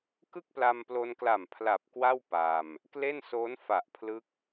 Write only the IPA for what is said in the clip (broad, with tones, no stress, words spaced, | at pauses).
kɯ˥˩k̚pla˧mplo˧nkla˨˩m pʰla˨˩p̚ kwa˥˩w pa˧m | kle˥˩nsoː˦˥nfa˨˩ʔpʰlɯ˦˥k̚